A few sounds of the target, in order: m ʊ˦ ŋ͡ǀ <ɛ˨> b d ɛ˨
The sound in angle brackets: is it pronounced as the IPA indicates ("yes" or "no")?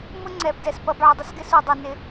yes